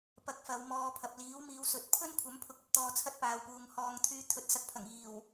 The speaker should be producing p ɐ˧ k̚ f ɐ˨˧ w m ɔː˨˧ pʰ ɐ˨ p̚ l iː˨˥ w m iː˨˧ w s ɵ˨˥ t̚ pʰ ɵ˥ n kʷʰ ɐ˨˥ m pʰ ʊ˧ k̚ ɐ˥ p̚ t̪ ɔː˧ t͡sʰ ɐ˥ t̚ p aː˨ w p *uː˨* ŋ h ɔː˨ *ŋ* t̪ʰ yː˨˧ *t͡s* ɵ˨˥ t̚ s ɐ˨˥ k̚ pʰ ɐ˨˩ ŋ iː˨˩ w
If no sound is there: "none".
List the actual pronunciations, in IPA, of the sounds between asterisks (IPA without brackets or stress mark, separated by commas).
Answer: uː˨, ŋ, t̪ʰ